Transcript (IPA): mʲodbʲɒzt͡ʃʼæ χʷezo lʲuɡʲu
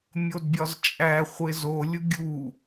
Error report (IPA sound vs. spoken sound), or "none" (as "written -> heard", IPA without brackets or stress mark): none